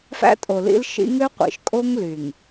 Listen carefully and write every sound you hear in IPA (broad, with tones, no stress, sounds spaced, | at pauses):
f æ̰˦ tʼ o˨ l ḭ˦ l ʃ ḭ˦ ŋ ø˦ qʷ ḭ˨ ʃ kʼ o˦ ŋ l y˨ ŋ